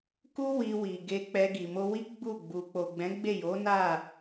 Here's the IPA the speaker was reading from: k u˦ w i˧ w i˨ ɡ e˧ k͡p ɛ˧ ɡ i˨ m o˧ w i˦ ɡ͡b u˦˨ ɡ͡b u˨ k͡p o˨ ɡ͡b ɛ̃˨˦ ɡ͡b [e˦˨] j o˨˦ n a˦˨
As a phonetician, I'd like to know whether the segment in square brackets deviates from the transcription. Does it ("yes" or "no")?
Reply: no